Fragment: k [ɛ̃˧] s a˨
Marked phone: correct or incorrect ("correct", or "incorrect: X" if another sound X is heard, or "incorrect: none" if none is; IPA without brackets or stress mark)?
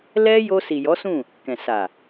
incorrect: ɛ̃˨